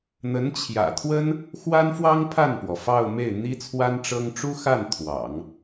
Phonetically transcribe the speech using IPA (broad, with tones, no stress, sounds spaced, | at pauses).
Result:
n̪ ə˧˥ n t͡ɕʰ j ä̰˨˩ t̪ʰ w ə˥ n | x w a˥ n f w ɑ˥ ŋ pʰ a˥˩ n p w ɔ˩ f ɑ˥˧ ʊ̯ m e˥˩ ɪ̯ n̪ i˥ t͡sʰ w a˥ n ʈ͡ʂ ɤ˥ ŋ ʈ͡ʂ u˥ x a˥˩ n t̪ʰ w ɑ̰˨˩˦ ŋ